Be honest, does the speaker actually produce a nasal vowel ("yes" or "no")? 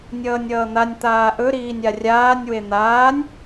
no